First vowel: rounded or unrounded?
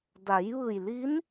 unrounded